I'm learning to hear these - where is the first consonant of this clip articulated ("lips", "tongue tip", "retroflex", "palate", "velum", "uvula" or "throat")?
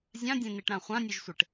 tongue tip